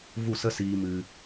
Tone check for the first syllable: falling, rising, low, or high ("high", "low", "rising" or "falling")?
falling